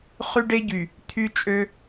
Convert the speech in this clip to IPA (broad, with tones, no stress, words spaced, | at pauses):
χy˦ɖe˦ɟy˨ | t̪ʰy˦t͡ʃʼø˦